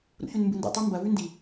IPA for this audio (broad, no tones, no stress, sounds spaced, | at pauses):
ɾ ṵ ç ʉ n m b ɨ n d ṵ tˤ ʉ m b ɐ v ʉ n d i